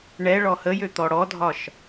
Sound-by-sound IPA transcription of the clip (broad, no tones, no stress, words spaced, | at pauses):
ɳɛ ɭɔhəjø t̪ɔɽɔdʱɒʃ